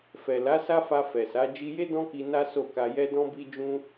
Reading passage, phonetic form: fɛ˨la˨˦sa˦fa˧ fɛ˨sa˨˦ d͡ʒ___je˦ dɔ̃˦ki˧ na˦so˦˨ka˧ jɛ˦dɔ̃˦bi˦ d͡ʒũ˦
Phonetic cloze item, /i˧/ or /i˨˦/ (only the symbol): i˧